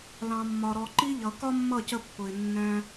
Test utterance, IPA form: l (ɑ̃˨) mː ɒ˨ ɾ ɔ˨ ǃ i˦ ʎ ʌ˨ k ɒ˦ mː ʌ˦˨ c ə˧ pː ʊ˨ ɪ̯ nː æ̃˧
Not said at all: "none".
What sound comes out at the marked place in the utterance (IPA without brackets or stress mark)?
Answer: ɑ̃˨